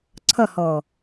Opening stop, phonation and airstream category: click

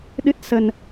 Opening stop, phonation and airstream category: implosive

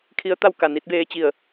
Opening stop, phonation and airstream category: aspirated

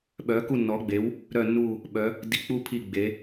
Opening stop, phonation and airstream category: implosive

